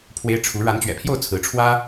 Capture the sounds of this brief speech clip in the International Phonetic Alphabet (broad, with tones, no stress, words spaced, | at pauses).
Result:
pʰwe˥ɪ̯ ʈ͡ʂʰu˧˥ ɻa˧˥nt͡ɕɥɛ̰˨˩pʰjo˥˩ʊ̯ t͡sʰɹ̩˧˥ʈ͡ʂʰwä˥